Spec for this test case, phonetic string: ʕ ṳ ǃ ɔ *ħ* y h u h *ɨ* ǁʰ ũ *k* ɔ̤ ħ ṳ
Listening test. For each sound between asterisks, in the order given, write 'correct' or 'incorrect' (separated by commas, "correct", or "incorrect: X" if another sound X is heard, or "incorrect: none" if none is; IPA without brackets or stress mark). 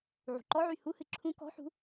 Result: incorrect: ʕ, correct, correct